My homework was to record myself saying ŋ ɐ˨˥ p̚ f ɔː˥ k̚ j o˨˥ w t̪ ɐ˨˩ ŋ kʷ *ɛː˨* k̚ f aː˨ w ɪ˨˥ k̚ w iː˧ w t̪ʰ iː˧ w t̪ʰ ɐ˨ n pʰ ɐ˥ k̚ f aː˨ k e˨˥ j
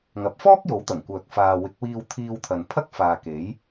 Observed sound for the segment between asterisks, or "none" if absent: œː˨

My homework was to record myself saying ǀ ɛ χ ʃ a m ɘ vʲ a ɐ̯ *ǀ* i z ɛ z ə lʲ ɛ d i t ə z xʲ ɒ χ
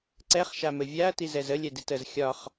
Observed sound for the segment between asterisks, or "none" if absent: t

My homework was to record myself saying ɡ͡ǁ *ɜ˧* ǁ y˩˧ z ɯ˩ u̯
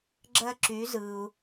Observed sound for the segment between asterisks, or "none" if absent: ɜ˧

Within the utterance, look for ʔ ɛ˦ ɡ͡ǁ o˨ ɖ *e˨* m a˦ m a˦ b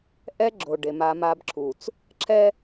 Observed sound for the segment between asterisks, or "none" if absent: e˨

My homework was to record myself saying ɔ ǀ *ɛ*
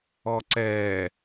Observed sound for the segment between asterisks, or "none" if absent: ɛ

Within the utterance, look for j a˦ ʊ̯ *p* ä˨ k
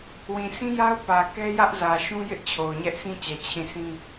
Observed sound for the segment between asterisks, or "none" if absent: p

